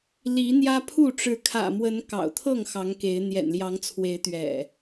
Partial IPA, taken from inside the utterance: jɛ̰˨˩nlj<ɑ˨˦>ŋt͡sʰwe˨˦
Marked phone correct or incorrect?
correct